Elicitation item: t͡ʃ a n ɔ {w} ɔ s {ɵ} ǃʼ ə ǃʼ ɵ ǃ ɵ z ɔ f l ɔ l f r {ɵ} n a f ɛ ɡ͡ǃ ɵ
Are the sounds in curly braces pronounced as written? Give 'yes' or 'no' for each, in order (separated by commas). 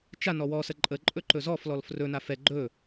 yes, no, yes